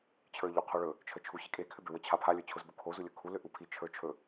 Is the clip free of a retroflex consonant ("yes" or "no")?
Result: no